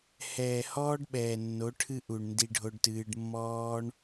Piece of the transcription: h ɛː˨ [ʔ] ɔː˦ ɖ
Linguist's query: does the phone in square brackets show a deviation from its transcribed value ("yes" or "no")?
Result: yes